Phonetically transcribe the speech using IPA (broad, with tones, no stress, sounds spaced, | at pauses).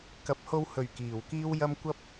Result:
k ɐ˨ p̚ h o˧ w h ɵ˨˩ ɥ k iː˨˩ w k iː˥ w j ɐ˥ m kʷ ɐ˥ p̚